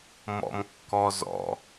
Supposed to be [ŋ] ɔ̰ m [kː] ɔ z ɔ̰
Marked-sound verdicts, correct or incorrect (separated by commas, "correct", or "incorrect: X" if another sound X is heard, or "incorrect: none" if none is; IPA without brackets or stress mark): incorrect: m, correct